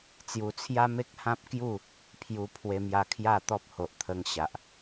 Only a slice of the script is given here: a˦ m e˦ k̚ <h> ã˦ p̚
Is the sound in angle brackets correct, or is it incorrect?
correct